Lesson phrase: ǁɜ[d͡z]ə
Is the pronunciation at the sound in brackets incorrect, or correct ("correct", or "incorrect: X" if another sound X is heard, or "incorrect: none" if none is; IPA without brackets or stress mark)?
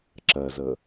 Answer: incorrect: z